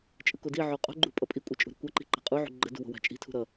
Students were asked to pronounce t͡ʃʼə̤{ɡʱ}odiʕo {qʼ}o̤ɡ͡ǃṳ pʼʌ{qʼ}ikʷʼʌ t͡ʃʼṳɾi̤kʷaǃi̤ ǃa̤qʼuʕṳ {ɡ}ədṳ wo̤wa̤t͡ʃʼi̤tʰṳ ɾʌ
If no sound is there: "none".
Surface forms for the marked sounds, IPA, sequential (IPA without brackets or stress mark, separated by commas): k, qʼ, pʼ, ɡ͡ǃ